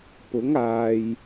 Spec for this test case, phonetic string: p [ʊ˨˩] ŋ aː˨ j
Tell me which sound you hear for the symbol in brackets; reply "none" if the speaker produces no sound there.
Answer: ʊ˨˥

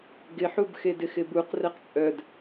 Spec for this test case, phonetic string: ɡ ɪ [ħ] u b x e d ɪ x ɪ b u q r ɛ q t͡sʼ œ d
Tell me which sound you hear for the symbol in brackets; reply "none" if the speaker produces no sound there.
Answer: ħ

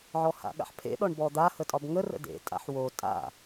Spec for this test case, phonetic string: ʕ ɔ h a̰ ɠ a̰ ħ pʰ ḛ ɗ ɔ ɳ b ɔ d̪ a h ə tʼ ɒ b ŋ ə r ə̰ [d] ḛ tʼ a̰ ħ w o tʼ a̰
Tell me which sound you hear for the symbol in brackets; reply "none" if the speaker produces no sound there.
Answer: d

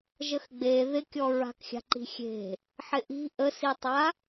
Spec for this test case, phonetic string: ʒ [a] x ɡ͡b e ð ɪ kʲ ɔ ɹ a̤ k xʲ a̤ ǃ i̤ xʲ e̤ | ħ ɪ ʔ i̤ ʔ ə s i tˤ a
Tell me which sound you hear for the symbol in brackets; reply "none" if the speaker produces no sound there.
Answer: ə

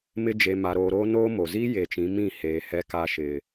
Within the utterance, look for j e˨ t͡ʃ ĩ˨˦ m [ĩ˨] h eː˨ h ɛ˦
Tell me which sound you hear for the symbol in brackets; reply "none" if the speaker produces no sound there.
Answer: ĩ˦˨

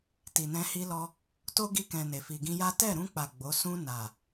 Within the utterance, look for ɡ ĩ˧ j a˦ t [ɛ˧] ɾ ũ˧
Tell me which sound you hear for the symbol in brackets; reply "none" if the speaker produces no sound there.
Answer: ɛ˦˨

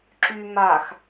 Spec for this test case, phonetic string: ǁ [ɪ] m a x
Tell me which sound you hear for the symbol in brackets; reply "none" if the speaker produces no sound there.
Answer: y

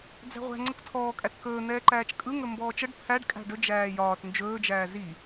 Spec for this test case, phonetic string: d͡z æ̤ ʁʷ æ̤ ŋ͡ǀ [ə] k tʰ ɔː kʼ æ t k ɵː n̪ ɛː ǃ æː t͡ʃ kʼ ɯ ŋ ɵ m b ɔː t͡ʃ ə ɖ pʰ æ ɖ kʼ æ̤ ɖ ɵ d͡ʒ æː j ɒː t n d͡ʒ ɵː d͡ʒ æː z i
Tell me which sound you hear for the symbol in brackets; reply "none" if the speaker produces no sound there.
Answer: ə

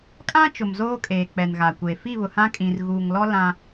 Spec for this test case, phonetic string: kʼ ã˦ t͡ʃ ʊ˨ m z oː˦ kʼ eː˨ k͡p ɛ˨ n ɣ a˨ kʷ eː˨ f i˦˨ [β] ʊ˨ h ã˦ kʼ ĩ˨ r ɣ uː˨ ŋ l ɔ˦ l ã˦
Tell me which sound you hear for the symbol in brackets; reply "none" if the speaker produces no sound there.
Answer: β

